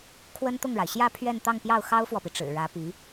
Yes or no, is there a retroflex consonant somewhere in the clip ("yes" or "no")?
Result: yes